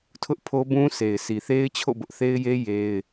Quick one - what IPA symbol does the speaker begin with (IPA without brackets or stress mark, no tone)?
tʰ